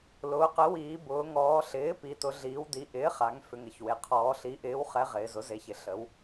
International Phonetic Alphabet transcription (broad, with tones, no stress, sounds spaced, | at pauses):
l ʊː˩˧ q ə˩˥ w iː˩˧ b ʊː˩˧ ŋ ɔː˩˧ ɬ ɪː˩˥ p i˩˧ t ʊ˩˧ ɮ iː˩˧ w d i˩˥ ʔ ɪː˩˥ χ a˩˧ ŋ f ʏ˩˧ ŋ ə˩˧ ç w e˩˧ qʰ ɔː˩˧ ɬ i˩˥ ʔ ɪː˩˥ w χ ɛ˩˧ ʁ ɪː˩˧ z ʊ˩˥ z e˩˥ ç ɪ˩˧ ɬ ə˩˧ w